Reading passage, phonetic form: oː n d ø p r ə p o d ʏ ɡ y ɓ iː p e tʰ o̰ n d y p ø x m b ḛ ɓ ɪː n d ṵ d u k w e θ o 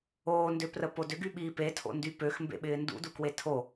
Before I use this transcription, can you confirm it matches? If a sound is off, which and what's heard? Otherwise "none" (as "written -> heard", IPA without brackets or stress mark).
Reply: θ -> tʰ